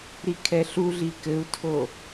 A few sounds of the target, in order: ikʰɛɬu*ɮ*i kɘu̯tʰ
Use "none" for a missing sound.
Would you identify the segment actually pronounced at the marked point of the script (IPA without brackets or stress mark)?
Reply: ɮ